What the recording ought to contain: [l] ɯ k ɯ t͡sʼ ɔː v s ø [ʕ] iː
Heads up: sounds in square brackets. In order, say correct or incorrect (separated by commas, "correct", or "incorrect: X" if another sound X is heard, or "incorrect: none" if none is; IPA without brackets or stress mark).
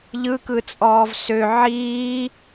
incorrect: ʎ, correct